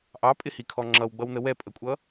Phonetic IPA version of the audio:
ʔ ɑ pʼ ɪ h i kʰ ɔ ŋ͡ǁ ʌ w ɡ͡b ʌ w n ə w ɛ pʼ ə kʷʼ ʌ

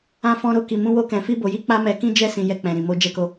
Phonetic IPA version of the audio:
ã˧ f ɔ̃˧ ɾ o˧ k i˨ m ũ˧ w o˧ k ɛ̃˨ f i˧ b o˨ j i˧ k͡p a˦ m ɛ˧ k ĩ˦ d͡ʒ ɛ˦ s ĩ˧ j ɛ˧ k͡p ɛ̃˨ ɾ ĩ˨ m o˧ d͡ʒ ɛ˧ k o˧

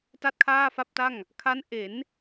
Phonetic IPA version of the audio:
t a˥˩ t̚ kʰ aː˥˩ f a˥˩ p̚ t a˥˩ ŋ | kʰ a˦˥ n ʔ e˩˦ n

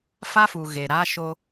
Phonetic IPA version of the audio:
f a˦ f u˨ ɣ e˨ ɾ a˦ ʃ o˦

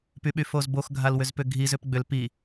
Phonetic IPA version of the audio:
p y ɓ y f o z b o x ɡʱ a l w ʏ z p ʏ ɡʱ i z ʏ p ɡ͡b ʏ l p i

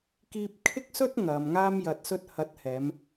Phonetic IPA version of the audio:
k iː˧ p̚ kʰ ɪ˥ k̚ s ɵ˥ t̚ ŋ ɐ˨˧ m ŋ aː˥ m j ɐ˧ t̚ s ɵ˥ t̚ h ɐ˨˥ t̚ h ɛː˨˧ m

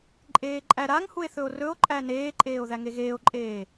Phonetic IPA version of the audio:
ǃʼ eː ǃʼ æ ɾ a ŋ h u e̯ θ ɵ o̯ r ɵ o̯ ǃʼ æ n eː ǃʼ eː o̯ ð æ ŋ e ɣ eː o̯ ǃʼ eː

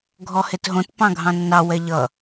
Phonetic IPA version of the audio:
ɡʱ ɔ h e t ɦ õ t p ɑ̃ ɡʱ ɑ̃ nː ɑ w ɛ ʎ ʌ

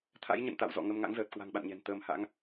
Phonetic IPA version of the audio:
t̪ʰ a̰˧˥ j ɲ ə̰˧˨ n t̪ a̰˧˨ w z ɔ̰˧˨ ŋ ə˧ m ŋ a̰˧˥ ŋ z əː˨˩ t̚ k w a̤˨˩ ŋ ɓ a̰˧˨ n ɲ ɛ̤˨˩ n t̪ əː˧ m h a̰˧˥ ŋ

